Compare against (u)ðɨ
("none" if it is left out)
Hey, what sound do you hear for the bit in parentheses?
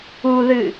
u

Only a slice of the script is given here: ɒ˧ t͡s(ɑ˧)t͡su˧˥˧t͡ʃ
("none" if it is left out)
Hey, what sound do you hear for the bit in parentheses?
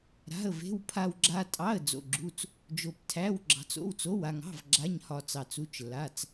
ɑ˧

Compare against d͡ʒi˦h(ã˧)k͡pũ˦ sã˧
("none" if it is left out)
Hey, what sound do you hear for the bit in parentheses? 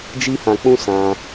ã˧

